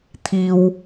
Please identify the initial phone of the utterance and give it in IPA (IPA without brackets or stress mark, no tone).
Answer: t̪ʰ